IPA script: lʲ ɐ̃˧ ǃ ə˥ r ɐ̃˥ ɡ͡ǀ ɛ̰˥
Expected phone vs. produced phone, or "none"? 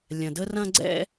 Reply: ǃ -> d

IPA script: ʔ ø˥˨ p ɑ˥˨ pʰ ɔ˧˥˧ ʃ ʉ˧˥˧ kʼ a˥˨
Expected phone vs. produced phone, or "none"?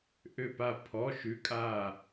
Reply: ɑ˥˨ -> a˥˨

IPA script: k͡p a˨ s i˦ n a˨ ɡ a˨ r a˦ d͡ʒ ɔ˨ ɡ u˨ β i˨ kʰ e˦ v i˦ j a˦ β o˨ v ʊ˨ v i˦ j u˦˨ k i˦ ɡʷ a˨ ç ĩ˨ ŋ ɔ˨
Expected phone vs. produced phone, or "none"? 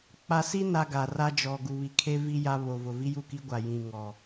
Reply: ç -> j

